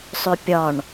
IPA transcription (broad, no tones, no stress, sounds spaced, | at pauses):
sˤ ʏ pʲ ɒ ɳ